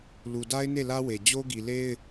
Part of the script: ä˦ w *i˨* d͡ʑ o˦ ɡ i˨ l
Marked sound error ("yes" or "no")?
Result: yes